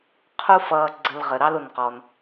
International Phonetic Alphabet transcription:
qʰ u˦ f ʌː˨ ɡ͡ǀ ə˨ l ʁ ə˩ ɾ ɑ˦ l ʊ˩ n q ɔ˩ n

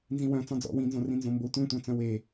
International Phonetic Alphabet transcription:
n z ĩ w œ̃ t͡s ɔ̃ d͡z ɔ̰ w ĩ n z õ r ĩ n z õ m b o tʷ ẽ tʷ œ̃ t͡s œ̃ w e

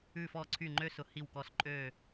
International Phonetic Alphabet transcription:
ʉ˧˩ f ɔ˧˩ ǀʰ y˧˩ ŋ͡ǃ ø˦˥ s ʊ˩˥ h i˧˩ w k ɔ˧˩ s ǃʼ ø˧˩

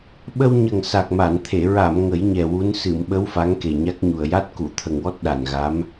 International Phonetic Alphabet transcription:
ɓ ə˧ w ɲ ə˨˩ ŋ s a˨˩ k̚ m a˨˩˨ n t̪ʰ e˨˩˨ ɹ a˨˩˨ m ŋ ə˨˩˦ j ɲ ɛ˨˩ w u˧˥ n s ɨ˨˩˨ m ɓ ə˧˥ w f a˧˥ ŋ k e˨˩ ɲ a˦˥ k̚ ɲ u˨˩ ə̯ j a˦˥ t̚ k u˨˩˨ t̪ʰ ə˨˩ ŋ w ɔ˦˥ t̚ ɗ a˨˩ n ɣ a˧˥ m

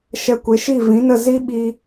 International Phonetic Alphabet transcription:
ʃ ɛ˧ kʷ e˨˦ ʃ i˦˨ v ĩ˨˦ n ə˦˨ z i˦ ɓ iː˦

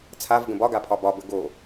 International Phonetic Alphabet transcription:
t͡sʰ a v ɡ ə̃ b ɒ ɡ a pʰ ɒ b ɒ b ə ɡ o

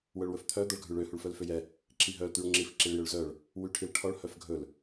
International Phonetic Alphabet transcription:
w œ ɭ w ɵ f t̪ʰ œ d̪ ɔ ɭ ɡʱ ʉ ɭ ø h u ɭ f œ l f ø j ɛ | ǁ i ɦ œ l t̪ y ɭ ŋ͡ǁ i f ǁ i ɭ j ø ɭ z œ ɭ | w y ʈʰ i l ʈʰ ɔ ɭ h œ f ɡʱ ɵ l

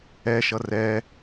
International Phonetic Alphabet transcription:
ɛ ʃ ʌ r ɛ

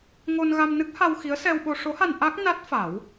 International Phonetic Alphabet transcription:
ŋ o˧ n ɣ a˧ m n ɨ˦˥ k̚ h a˧ w x i˧˥ ə̯ s ɛ˧ w ɓ o˧ ʂ o˧˥ h a˧ n ʔ a˦˥ k̚ n a˦˥ t̚ f a˨˩˦ w

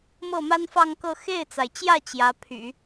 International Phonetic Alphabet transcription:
m ɤ˥˩ m a˥ n f ɑ˥˧ ŋ k ɤ˥˧ x e˥˩ ɪ̯ t͡s a˩ ɪ̯ t͡ɕ j ä˥˩ t͡ɕ j ä˧˥ pʰ y̰˨˩˦

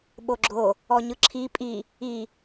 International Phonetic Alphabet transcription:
ɓ o ɡ͡ǁ o | ɔ ɲ ɯ ǁʰ i pʼ i | i

